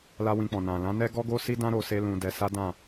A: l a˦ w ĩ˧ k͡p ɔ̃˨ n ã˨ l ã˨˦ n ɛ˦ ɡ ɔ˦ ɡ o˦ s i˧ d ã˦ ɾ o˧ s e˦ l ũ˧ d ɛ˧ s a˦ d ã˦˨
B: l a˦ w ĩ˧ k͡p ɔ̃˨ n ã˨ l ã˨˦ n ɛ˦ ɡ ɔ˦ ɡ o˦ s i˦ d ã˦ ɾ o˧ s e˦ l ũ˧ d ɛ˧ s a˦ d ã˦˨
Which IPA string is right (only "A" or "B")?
B